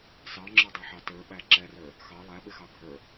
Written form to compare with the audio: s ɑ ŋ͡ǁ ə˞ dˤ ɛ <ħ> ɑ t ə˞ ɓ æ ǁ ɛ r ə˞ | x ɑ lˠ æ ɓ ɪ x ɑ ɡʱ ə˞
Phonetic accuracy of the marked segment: correct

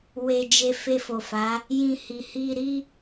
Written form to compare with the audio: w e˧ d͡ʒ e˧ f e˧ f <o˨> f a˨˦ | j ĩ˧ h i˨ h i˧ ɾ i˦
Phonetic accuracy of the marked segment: correct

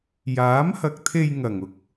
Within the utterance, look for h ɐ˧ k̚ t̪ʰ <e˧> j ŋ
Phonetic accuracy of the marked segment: correct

